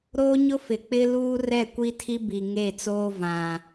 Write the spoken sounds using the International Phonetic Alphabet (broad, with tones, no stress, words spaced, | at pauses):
ɾoː˦ɲʊ˦fɪ˨ k͡pɪ˦luː˦ rɛ˦˨kʷi˦tʰi˦ bi˨ŋe˦˨t͡soː˦vã˨